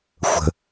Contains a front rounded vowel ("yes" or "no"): no